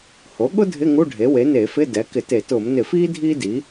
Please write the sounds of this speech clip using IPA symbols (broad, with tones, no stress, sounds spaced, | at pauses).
h o˩˥ ɠ ʊ˥ dʱ ɪ˧˥˧ ŋ u˧˥˧ ɖʱ e˩˥ w e˩˥ n eː˧˩˧ f ɪ˧˥˧ d ɛ˩˥ k ɪ˧˩˧ t e˧˩˧ t ʊː˧˩˧ m n ɪ˧˩˧ f iː˥ dʱ iː˥ d i˩˥